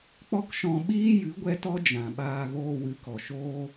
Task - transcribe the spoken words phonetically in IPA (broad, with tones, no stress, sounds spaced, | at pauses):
k͡p ɔ˦ k ʃ ɔ̃˧ ɓ iː˦ j ɨ˨˦ ɡʷ ɛ˦ t ɔ˦ d͡ʒ ã˨ ɓ aː˧ ɣ oː˧ w ɨ˨˦ k ɔ˨ ʃ oː˦